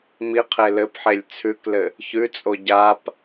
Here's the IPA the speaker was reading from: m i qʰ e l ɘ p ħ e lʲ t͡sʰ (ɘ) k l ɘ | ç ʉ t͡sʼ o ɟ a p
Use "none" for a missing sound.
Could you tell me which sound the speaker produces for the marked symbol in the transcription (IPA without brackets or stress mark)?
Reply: ʉ